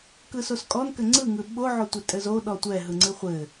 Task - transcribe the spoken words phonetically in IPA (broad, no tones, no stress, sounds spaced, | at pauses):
k ɯ s o s kʼ ɔ n k ɘ ŋ͡ǀ ɯ ŋ ɯ ɓ o ʕ o tʷ ɘ tʼ ɘ z o ɗ ɔ tʷ ɛ ɦ ɯ ŋ͡ǀ ɨ χʷ ɘ